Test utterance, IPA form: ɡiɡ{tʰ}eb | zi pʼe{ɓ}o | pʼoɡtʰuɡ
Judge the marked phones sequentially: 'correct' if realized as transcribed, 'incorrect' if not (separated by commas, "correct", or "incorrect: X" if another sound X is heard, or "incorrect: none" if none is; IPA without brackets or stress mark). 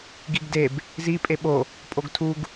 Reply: incorrect: d, correct